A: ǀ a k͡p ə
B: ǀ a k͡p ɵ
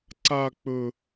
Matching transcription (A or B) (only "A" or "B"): B